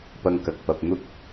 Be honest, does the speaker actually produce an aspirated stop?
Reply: no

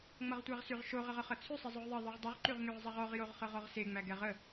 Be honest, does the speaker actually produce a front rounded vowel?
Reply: yes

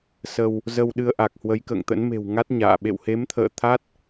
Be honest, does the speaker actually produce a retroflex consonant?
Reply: no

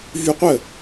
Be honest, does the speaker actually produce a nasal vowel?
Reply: no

